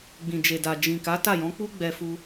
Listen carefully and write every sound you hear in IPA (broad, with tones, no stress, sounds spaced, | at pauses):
ɡ͡b ĩ˨ d͡ʒ e˨ d a˨ d͡ʒ ĩ˨ k a˨˦ t a˦˨ j ɔ̃˨˦ k͡p u˦ ɡ͡b ɛ˧ f u˧